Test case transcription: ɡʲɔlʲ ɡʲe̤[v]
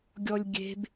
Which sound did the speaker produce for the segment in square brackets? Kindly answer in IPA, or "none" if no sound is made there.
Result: b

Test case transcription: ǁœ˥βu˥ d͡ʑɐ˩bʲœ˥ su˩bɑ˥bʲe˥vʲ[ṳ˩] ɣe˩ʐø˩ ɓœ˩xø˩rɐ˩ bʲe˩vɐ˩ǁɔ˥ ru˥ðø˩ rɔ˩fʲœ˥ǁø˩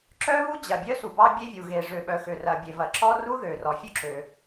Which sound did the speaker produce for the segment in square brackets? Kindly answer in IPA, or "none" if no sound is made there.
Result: u˩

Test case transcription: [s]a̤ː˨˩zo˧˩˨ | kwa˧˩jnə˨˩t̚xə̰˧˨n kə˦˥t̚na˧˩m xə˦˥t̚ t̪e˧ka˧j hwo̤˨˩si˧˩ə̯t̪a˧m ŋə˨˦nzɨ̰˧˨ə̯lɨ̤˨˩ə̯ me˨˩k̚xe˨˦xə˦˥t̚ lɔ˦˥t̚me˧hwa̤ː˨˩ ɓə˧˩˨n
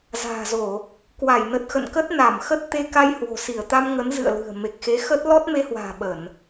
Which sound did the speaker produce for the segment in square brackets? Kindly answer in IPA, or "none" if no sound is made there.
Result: z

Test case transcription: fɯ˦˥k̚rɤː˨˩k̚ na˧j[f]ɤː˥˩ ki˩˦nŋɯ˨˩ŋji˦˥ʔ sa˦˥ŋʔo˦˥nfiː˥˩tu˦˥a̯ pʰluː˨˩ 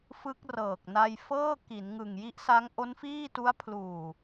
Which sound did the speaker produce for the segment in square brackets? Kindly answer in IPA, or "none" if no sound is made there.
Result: f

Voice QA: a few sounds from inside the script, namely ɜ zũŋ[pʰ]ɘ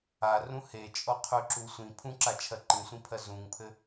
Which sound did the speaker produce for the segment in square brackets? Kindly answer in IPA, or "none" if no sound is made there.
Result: pʰ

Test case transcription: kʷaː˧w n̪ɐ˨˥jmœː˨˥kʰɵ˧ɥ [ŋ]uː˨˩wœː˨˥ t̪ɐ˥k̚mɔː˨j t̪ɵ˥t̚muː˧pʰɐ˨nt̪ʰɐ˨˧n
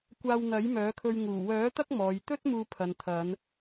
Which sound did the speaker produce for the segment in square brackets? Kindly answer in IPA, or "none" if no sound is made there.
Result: ŋ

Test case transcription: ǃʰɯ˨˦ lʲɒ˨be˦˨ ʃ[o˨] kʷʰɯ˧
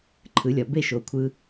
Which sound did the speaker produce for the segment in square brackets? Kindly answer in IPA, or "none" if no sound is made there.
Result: o˨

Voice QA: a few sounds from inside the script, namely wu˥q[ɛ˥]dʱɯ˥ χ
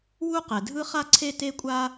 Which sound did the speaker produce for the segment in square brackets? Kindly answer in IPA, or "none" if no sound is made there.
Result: ɛ˩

